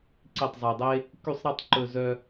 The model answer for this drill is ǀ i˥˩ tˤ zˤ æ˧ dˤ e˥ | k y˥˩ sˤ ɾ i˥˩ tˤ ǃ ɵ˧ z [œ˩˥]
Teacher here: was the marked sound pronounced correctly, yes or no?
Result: no